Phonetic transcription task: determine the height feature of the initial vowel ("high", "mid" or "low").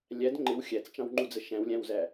low